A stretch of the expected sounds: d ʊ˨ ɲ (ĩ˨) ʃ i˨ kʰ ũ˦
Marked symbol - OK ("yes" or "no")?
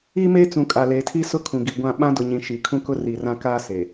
yes